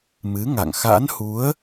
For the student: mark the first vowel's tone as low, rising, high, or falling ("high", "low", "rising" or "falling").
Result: rising